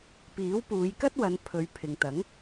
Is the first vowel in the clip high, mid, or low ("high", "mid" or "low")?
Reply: high